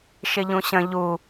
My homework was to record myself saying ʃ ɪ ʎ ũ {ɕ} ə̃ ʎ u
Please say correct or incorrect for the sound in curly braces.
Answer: correct